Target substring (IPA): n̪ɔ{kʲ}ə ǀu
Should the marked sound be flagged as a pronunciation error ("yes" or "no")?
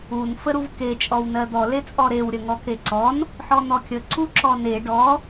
no